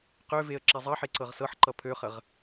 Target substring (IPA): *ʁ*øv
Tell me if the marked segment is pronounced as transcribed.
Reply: no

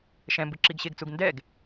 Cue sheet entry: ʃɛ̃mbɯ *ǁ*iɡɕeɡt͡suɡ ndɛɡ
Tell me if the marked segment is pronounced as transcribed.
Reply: yes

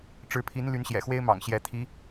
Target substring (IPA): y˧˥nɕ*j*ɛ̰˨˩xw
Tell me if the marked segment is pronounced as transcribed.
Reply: yes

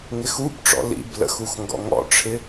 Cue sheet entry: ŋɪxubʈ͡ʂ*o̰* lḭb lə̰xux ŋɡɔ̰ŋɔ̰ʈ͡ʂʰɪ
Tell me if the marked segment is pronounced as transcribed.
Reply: no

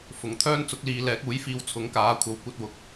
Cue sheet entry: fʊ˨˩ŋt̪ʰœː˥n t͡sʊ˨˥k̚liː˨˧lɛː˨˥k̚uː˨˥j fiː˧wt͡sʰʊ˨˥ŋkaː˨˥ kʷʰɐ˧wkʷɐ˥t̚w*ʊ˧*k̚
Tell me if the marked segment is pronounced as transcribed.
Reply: yes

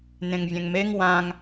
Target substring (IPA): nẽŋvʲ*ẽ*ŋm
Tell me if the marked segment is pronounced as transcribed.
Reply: no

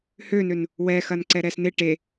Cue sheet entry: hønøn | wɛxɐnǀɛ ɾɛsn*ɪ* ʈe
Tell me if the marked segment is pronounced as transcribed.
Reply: yes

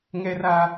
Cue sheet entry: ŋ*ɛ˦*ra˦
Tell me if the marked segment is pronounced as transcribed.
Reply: yes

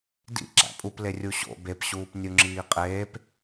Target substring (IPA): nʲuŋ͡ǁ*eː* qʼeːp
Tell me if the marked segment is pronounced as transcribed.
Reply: no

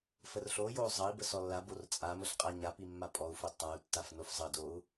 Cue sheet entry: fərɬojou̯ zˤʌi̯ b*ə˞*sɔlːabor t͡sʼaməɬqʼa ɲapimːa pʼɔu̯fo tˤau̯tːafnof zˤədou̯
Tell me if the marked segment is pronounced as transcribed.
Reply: no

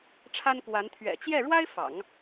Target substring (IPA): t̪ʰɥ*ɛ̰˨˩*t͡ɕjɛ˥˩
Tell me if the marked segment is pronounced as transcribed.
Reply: yes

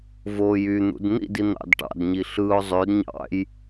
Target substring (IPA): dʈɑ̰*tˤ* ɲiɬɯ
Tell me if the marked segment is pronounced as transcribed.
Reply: no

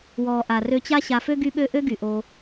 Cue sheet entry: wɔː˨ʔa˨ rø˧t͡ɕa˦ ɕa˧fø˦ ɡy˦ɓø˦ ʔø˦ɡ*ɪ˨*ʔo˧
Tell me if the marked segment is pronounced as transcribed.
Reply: no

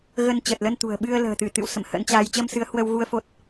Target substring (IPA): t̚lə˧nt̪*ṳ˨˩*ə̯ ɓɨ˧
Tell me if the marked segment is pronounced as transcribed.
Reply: yes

